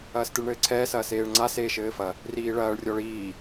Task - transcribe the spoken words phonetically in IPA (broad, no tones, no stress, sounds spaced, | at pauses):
ɐː s t ɨ ɭ ɳ ɘː ǀʰ ɛː s ɐː s eː ɭ ŋ͡ǀ a s eː ʃ ɘː f ɐ | r iː ɭ ɐː ɭ rʲ ɔ ɭ iː